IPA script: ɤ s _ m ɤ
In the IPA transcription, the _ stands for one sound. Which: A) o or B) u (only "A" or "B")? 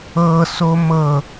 A